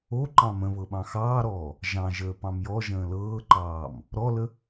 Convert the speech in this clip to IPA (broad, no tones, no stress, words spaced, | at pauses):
oǃɑ̃ mə̃βɤ ɓɑ̃xɑːɾɔː | ʒɑ̃ʒəː pɑ̃mjɔʒə̃ː lɤːǃɑːm | ɾɔlə